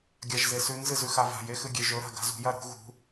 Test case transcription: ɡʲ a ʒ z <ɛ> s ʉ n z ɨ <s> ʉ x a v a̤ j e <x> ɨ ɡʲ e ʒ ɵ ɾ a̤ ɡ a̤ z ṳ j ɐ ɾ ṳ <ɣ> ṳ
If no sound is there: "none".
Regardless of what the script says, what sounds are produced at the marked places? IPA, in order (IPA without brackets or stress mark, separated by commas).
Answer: e, z, x, ɣ